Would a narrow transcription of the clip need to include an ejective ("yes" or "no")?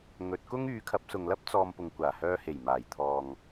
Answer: no